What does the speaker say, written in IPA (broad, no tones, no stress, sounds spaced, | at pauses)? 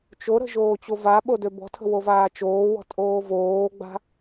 t͡ʃ o ɾ ə̤ ʒ oː t͡ɕ o v a ɓ o d ø b ɔ̤ tʰ ə̤ w o v aː t͡ʃ oː w ɔ̤ tʼ oː v oː ɡ͡b a̤